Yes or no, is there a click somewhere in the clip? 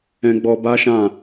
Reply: no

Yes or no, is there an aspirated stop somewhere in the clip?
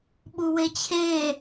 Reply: yes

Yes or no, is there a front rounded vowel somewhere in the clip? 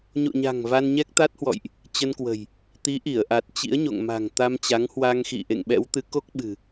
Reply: no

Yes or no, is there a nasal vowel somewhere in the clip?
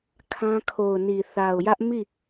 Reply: yes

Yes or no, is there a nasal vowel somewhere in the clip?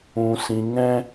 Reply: yes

